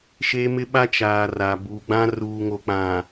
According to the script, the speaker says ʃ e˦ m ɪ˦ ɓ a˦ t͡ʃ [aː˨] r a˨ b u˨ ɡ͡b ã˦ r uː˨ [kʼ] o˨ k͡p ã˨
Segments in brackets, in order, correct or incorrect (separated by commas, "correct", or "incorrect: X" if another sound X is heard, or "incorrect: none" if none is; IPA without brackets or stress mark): correct, incorrect: ŋ